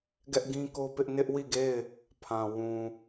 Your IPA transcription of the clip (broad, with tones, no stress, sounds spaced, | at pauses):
ɡ ɛ˦ ʔ ɡ ĩ˦ k o˦ p ɪ˦ ʔ n ɪ˦ ʔ w i˦˨ ɡ e˦˨ ɪ̯ | pʰ ã˨ w ũ˨